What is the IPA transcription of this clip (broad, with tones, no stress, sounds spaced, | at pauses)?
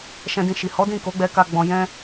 ʃ ɛ̃˧ d ĩ˧ ʃ i˨ h ɔ˨˦ d ĩ˦˨ k o˨˦ ɡ͡b ɛ˧ k a˧ ɡ͡b ɔ̃˧ j ɛ̃˦